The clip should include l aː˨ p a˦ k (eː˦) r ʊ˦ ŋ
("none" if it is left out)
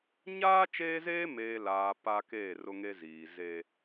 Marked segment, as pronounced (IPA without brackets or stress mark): eː˦˨